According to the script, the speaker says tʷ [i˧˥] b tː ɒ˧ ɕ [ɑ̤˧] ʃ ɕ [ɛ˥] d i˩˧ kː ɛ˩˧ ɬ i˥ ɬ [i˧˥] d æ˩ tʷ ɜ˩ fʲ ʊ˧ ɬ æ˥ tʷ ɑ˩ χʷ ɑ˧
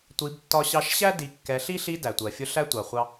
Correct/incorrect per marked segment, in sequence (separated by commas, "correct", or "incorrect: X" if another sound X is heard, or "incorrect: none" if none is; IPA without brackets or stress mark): incorrect: i˩˧, incorrect: ɑ˧, incorrect: æ˥, correct